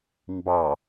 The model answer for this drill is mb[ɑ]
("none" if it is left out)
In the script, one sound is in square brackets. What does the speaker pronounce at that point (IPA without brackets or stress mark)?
ɑ